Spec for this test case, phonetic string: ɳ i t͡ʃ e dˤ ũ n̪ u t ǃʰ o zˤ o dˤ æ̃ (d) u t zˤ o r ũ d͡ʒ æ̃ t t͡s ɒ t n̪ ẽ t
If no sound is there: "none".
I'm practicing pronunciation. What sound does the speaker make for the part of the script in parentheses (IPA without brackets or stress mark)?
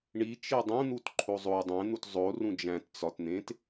n̪